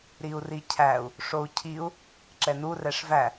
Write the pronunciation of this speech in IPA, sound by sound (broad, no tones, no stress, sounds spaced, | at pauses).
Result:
ɾ i u̯ r i cʰ æ u̯ | ʂ o u̯ cʰ i u̯ | ǁ ɛ n u r ɛ ʂ v æ